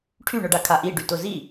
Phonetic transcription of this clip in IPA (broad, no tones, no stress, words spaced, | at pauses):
ʈʰyɳʊɖa kʰaʔi ɖytʊzi